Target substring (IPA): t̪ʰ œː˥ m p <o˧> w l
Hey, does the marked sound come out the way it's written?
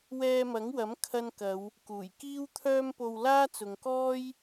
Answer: yes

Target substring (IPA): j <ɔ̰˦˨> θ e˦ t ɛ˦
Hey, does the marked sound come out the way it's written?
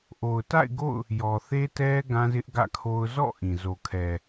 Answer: no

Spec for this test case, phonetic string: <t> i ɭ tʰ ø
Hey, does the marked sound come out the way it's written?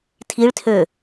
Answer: no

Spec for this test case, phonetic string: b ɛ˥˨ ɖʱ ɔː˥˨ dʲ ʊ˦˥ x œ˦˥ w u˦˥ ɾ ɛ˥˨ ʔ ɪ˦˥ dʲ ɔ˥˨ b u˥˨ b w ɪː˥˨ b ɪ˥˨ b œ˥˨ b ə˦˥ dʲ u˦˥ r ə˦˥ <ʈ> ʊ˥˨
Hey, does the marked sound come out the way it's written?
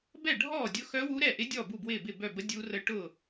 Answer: yes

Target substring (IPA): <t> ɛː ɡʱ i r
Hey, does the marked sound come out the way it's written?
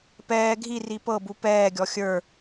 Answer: no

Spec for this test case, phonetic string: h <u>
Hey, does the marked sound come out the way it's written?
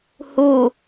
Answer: yes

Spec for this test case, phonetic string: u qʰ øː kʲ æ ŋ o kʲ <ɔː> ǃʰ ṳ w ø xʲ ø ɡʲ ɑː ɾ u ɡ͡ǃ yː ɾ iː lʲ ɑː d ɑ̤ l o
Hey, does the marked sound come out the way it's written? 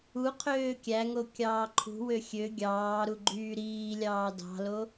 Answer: no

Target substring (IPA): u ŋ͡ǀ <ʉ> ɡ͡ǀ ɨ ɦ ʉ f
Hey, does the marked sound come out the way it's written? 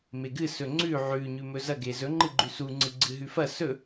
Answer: no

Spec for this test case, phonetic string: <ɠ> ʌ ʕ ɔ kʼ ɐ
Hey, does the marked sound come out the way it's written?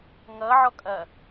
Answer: no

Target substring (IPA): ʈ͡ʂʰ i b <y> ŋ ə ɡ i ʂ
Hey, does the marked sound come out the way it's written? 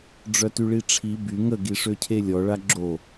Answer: yes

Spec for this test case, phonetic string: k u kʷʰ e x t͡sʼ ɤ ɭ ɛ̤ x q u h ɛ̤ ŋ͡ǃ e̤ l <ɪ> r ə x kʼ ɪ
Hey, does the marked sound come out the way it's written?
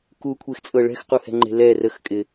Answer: no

